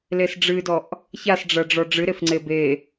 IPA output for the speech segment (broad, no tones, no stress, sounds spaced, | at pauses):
l e s ɖ͡ʐ ɨ d ɔ ʔ | ç a s ɖ͡ʐ ɐ ɖ͡ʐ ɔ ɖ͡ʐ ɨ ɾ e f ŋ͡ǀ e b e